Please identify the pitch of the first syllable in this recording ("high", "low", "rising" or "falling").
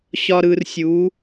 low